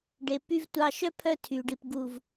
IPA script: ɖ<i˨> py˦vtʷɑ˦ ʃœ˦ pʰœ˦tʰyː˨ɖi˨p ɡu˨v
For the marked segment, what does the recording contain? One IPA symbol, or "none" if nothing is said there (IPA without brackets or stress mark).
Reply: e˨